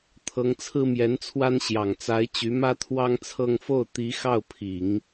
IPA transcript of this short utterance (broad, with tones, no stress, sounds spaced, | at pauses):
t̪ʰ ɤ˧˥ ŋ t͡sʰ ɹ̩˥ m j ɛ˧˥ n t͡sʰ w a˥ n ɕ j ɑ˨˩ ŋ t͡s a˧˥ ɪ̯ t͡ɕ y˧˥ m ä˥ t̪ʰ w ɑ˥ ŋ t͡sʰ ɤ˥˧ ŋ f o˥˩ ʊ̯ t̪ i˧˥ x ɑ˥˩ ʊ̯ pʰ i˨˩˦ ŋ